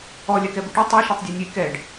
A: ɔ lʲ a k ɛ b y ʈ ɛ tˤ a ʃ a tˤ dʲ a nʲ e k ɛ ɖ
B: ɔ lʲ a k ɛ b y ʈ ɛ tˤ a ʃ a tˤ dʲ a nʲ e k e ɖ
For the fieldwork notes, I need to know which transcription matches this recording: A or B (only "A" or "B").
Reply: A